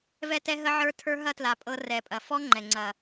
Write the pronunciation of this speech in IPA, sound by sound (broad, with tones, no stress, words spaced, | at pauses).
vɛ˧tɛ˧ ɦə˧ ʕə˞˧ tʰə˞˧ ɦɐ˧tla˨˩ pʼɤ˧ rɛ˨˩pʼɐ˨˩ fɔ˧ ŋ͡ǃɛ˨˩ŋ͡ǀɐ˨˩